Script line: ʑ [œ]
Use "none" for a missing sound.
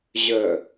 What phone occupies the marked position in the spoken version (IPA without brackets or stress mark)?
œ